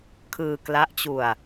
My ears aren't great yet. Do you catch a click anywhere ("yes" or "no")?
no